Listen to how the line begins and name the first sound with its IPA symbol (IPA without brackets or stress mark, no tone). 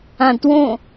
ã